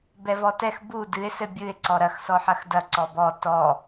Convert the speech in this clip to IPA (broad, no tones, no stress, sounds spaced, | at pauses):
b ɛ v ɔ t ɛ x b u d ɨ e̯ s ɘ bʲ ɨ e̯ ǀ ɔ ɾ ɐ x s ɔ ħ ɐ x d ɐ ǀ ɔ b ɔ t ɔ